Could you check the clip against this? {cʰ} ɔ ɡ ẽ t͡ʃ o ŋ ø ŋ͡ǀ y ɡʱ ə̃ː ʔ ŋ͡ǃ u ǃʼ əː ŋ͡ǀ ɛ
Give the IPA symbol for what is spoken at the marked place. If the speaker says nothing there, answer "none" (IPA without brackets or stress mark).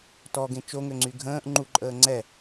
t